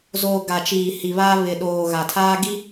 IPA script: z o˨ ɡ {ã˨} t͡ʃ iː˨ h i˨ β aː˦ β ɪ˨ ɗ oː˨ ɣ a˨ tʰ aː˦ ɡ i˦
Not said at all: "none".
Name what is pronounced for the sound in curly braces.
a˨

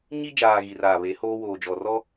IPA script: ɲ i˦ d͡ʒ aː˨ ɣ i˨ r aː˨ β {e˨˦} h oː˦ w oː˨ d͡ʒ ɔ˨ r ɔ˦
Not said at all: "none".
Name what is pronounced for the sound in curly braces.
e˨˦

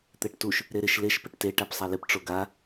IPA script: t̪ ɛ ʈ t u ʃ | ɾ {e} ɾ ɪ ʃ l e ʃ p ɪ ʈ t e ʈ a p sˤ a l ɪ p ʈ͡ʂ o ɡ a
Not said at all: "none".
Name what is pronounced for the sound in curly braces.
e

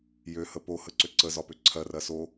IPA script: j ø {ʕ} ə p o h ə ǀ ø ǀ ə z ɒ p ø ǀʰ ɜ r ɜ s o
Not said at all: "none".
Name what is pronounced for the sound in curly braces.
h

